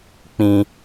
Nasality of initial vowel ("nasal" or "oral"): nasal